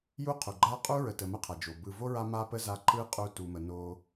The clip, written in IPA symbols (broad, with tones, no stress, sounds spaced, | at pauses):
j u˥ qʰ u˩ ɡ͡ǃ a˥ qʼ u˥ ɹ ə˨ t ə˨ m ə˥ qʰ a˩ d͡ʒ o˩ b ɯ˨ v o˥ ɹ a˦ m a˥ p ə˥ z a˦ ǃ ɯ˦ qʼ u˥ t u˨ m ə˨ n o˥